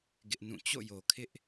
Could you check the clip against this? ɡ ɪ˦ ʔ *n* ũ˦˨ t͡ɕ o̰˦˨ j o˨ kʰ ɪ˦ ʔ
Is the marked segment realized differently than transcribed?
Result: no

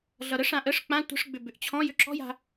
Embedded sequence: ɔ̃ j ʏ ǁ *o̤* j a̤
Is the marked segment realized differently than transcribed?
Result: yes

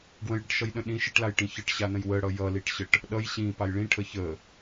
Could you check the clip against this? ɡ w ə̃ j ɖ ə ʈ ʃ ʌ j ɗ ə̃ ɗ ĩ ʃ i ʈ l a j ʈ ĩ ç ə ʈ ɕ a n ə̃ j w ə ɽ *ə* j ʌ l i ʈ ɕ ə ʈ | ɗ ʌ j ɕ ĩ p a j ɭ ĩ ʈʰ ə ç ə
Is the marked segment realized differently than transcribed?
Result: yes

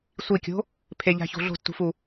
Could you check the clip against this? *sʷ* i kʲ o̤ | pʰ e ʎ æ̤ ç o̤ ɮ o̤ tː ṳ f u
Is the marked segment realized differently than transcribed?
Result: no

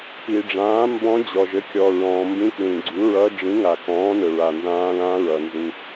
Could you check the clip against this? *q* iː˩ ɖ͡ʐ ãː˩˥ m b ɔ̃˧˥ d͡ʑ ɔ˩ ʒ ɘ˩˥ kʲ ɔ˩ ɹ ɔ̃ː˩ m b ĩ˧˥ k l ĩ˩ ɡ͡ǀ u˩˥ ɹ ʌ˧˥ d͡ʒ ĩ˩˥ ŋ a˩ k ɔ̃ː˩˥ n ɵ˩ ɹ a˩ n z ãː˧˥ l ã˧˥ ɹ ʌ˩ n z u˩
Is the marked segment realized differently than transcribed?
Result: yes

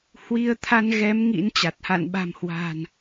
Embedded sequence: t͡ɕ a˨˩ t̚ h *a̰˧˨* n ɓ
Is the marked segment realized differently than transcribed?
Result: no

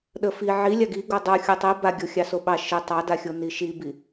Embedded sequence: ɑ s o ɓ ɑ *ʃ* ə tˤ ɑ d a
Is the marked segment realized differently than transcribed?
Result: no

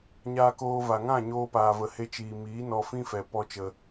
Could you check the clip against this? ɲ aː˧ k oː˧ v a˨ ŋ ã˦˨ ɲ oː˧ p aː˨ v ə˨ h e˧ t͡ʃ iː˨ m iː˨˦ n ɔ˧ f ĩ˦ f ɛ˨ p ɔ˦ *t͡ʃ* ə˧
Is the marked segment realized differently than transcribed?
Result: no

